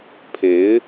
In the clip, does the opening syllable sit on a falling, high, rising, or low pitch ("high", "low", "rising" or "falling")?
rising